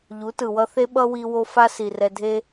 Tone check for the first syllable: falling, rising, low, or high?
rising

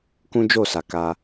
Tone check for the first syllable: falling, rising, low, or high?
high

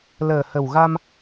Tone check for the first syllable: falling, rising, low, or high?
low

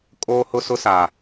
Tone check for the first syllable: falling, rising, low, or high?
high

